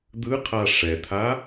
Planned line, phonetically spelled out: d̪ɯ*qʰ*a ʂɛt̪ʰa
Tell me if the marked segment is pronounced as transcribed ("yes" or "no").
yes